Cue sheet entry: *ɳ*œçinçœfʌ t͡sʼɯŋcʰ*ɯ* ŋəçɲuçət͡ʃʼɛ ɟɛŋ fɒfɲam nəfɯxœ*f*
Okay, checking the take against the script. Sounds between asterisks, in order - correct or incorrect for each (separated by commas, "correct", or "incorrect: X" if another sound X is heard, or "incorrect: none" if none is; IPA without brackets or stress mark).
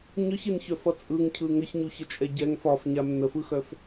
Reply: incorrect: ɲ, correct, correct